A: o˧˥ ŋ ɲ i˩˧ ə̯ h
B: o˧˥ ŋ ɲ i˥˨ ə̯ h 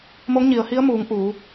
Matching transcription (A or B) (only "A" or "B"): A